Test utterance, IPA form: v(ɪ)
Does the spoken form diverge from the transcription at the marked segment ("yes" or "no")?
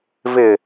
no